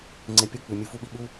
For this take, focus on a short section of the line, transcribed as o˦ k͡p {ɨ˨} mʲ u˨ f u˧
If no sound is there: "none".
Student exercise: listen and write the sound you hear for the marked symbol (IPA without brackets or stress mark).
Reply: ʉ˨